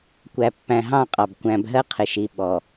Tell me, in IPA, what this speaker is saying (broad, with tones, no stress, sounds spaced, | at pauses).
kʷ æ˨ pː æ̃˨ ɦ ɑ̃˦˨ qʼ ɑ˨ b kʷ æ̃˨ b ɦ ɜ˦ qʰ ɪ˨ ʃ i˨ ɓ ɔ˨